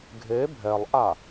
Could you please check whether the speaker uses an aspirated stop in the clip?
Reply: no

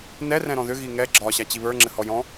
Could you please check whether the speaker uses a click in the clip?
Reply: yes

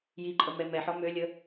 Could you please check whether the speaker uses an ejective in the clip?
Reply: yes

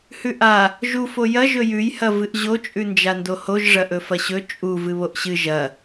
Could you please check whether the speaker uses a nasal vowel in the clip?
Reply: no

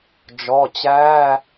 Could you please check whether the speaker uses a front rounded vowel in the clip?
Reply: no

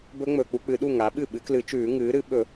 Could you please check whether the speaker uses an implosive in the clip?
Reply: yes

